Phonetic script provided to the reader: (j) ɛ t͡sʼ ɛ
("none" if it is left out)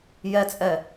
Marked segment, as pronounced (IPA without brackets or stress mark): j